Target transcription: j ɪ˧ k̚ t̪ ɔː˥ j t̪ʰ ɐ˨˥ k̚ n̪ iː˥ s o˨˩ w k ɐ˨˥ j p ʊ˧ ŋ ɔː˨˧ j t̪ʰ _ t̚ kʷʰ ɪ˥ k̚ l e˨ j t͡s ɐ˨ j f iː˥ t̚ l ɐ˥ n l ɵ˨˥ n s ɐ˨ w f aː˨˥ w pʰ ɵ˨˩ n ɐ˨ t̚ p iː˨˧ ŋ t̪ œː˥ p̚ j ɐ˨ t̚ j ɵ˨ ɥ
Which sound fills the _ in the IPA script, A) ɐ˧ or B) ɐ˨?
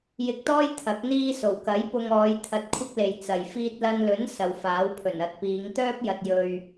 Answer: A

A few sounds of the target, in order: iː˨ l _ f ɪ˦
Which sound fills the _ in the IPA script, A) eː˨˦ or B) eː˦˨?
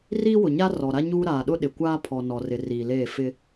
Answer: B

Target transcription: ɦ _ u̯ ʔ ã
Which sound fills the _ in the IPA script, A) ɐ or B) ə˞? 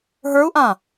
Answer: B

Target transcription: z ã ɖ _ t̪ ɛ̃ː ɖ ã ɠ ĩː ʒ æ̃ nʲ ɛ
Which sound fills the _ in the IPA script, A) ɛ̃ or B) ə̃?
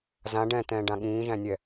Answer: A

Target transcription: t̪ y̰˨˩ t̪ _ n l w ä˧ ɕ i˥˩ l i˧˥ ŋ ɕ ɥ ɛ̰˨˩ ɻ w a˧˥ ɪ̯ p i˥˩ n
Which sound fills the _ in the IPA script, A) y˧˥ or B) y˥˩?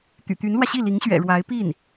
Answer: A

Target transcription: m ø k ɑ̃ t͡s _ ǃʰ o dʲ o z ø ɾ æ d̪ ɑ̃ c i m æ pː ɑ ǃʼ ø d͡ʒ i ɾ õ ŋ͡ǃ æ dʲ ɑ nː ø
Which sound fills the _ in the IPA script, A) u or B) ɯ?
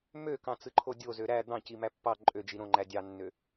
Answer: B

